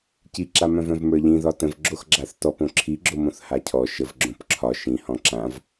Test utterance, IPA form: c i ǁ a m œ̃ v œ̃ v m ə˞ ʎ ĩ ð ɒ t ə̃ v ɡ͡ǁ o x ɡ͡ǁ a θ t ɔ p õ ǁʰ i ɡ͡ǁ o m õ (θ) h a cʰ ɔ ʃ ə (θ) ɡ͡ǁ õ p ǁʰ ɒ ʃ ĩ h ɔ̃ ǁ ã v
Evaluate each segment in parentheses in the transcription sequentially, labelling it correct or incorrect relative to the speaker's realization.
correct, incorrect: v

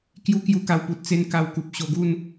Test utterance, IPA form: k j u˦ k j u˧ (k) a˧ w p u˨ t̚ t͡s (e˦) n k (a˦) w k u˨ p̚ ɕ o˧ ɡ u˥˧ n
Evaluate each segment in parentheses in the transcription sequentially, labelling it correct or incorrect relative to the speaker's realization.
correct, correct, incorrect: a˧

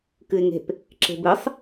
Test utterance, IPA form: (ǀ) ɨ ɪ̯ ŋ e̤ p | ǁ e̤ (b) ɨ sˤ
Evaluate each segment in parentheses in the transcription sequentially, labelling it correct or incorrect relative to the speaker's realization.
incorrect: k, correct

